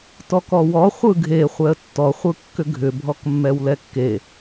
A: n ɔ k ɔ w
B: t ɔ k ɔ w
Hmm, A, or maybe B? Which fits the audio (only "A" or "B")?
B